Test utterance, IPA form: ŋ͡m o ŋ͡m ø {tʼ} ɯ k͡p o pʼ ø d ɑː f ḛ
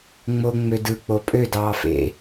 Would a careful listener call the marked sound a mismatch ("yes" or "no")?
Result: yes